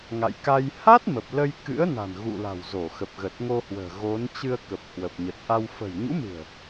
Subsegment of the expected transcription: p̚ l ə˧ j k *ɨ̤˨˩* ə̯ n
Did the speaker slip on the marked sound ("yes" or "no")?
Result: yes